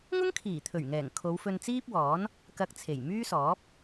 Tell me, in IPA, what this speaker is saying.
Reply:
ŋ ʊ˥ ŋ kʰ iː˨˩ t̪ʰ ɵ˨˩ ɥ ŋ ɛː˨˩ ŋ kʰ o˨˧ w f ɵ˧ n t͡s iː˥ p̚ w ɔː˨˥ n | k ɐ˧ k̚ t͡sʰ e˨˩ j m yː˥ s ɔː˨˥ p̚

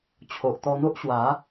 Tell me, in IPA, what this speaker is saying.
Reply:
t͡ɕʰ o˨ ʔ t̪ ɔ˧ n̪ o˦ ʔ ɕ w a˨˦

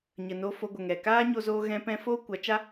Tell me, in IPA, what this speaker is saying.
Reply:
ɲ ə˨ n oː˧ f o˧ ɡʷ ə˨ ŋ ɛ˨ k aː˦ ɲ o˧ z oː˧ ɣ ɛ̃˦ p ɛ̃˦ f oː˦ kʷ a˨˦ t͡ʃ a˦

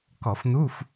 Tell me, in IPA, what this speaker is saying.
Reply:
k ɔ˧˩˧ f n u˧˥˧ f

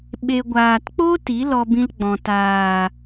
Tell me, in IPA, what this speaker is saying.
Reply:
ɓ e˨ ɡʷ aː˨ t k͡p o˦ t i˨˦ l ɔ˧ b ĩ˧ l ɡ͡b ɔ̃˨ t aː˨

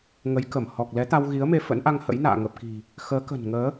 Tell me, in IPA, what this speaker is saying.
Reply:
ŋ ə˨˦ j k ə˧˩ m h ɔ˨˩ k̚ l ɛ˨˦ t̪ a˧ w ɣ i˨˦ ə̯ m e˧ f ə̰˧˥ n ʔ a˧ ŋ h ə̰˧˥ j n a̰ː˧˨ ŋ ə˨˩ p̚ k i̤˨˩ | x əː˨˦ k ə̤˨˩ n ŋ əː˨˦

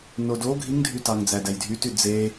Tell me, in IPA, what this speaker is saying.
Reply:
n o d o ɡʱ i ŋ dʱ y t ɑ ŋ d͡z æ d æ j dʱ y t y d͡z e

